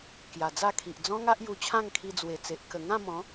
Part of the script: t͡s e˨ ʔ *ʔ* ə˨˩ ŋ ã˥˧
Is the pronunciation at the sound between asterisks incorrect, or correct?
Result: incorrect: k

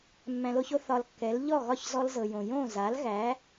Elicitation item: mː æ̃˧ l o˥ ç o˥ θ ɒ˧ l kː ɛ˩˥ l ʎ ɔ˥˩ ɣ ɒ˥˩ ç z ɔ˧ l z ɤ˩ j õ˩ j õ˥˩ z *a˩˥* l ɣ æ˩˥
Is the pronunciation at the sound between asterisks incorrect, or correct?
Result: correct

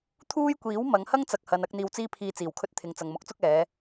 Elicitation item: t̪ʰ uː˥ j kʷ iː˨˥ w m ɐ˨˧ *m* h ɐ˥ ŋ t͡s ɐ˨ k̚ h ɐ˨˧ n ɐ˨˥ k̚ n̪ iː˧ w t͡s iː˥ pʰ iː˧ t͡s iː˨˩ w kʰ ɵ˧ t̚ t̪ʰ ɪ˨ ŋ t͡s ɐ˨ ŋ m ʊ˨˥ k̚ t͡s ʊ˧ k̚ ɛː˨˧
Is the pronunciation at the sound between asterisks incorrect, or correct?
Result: incorrect: ŋ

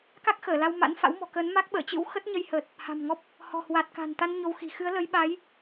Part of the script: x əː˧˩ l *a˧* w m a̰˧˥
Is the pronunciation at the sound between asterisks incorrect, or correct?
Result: correct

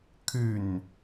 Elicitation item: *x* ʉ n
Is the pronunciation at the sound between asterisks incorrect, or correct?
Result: incorrect: kʰ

